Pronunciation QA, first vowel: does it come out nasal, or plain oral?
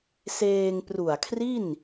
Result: oral